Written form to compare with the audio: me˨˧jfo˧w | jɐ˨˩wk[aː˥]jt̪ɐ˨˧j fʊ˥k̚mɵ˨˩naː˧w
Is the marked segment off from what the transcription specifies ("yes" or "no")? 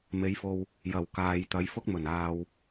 yes